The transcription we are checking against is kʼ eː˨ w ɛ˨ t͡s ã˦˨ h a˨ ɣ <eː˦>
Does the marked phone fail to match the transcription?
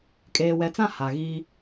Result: yes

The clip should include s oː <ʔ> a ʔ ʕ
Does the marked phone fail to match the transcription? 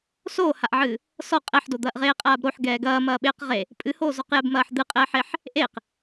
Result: yes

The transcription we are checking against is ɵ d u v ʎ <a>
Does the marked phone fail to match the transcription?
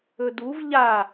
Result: no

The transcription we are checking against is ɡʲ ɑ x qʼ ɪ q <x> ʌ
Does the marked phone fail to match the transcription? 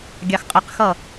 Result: no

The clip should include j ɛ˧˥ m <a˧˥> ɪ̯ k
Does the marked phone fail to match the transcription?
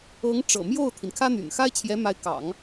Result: no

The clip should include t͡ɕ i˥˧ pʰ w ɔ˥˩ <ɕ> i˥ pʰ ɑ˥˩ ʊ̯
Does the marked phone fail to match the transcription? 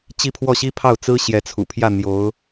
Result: no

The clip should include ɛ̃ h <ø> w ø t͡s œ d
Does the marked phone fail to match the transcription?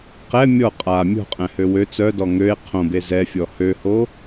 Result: no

